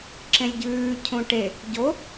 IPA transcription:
ǁẽlʲɟʉː cʰũʈe | ɟo

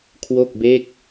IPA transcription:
kʰwo˥˩k̚be˥˩k̚

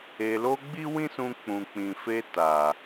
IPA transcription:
e˨lo˧ ɡ͡bi˦wĩ˦sũ˧ k͡pũ˨k͡pĩ˨ fe˧ ta˨

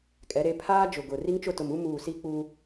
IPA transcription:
kʼɛ˨˦ɾe˨˦ pʰaː˦d͡ʒʊ˨ɡʊ˨ ri˦ŋt͡ʃʊ˦˨ tʊ˨mu˦ muː˨ si˦k͡pu˦

